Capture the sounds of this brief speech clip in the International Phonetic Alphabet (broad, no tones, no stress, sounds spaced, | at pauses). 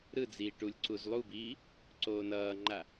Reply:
ɾ ɯ d͡z iː ʈ u lʲ ǀ u z lˠ u b iː | ǀ oː n ʌː ŋ͡ǃ a